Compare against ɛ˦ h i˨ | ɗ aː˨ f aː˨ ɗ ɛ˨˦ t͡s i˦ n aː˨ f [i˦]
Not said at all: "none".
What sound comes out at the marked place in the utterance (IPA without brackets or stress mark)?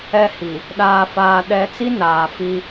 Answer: i˦